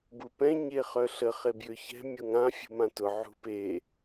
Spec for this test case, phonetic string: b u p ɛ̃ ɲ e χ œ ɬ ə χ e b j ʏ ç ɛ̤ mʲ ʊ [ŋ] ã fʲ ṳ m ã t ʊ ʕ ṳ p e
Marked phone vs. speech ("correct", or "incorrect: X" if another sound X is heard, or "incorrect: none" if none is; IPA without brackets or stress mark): correct